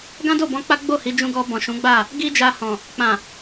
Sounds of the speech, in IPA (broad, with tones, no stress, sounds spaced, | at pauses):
ɡ ã˦ d o˦˨ b ɔ̃˧ k͡p a˦ ɡ͡b o˦˨ h i˨˦ d͡ʒ ũ˧ ɡ ɔ˧ b ɔ̃˨ ʃ ũ˨˦ ɡ͡b a˦˨ | ɡ i˦ d͡ʒ a˧ h ɔ̃˨ | k͡p ã˨